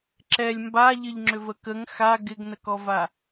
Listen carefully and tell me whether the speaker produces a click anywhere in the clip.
yes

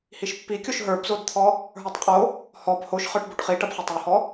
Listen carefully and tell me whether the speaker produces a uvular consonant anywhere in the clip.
yes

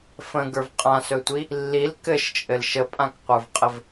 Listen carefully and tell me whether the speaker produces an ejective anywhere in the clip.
yes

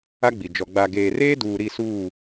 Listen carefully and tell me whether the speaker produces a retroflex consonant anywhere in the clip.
no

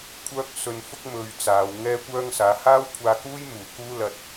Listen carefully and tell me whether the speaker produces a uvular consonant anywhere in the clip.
no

